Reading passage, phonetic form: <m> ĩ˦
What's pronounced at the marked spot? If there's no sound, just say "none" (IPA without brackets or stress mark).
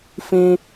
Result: f